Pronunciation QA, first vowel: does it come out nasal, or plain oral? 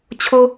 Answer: oral